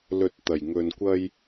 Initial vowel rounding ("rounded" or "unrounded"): rounded